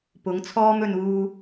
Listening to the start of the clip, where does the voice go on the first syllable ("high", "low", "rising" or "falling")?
rising